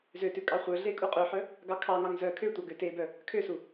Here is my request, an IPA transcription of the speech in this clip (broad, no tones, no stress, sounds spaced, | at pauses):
z ø t ʉ kʼ ɑ χʷ œ ɮ e kʼ u qʼ ø ħ œ | ɡ ɑ kʰ ɑ ŋ ɑ ŋ z œ kʰ ø tʷ ɑ ɡ ø t e b œ | kʰ ø s u